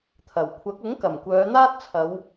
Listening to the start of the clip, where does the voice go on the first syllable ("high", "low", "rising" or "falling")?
low